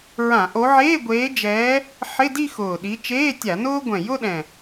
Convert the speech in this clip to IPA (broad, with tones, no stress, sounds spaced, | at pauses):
ɹ ã˧˩˧ ʔ o˨˦ ʕ eː˧˥˧ ɡʷ eː˨˦ d͡ʒ ɛː˨˦ | ħ ɪ˧˥˧ d i˥˧ x ʊː˨˩ ɗ i˨˦ t͡ʃ eː˧˥˧ tʲ a˧˩˧ n ʊː˥ ɡʷ ɛ̃˨˩ j ʊ˥˧ ɗ ɛ̃˨˩